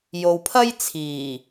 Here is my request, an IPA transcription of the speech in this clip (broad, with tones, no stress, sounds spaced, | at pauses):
j o˨ w pʰ ɐ˥ j t͡sʰ iː˨˩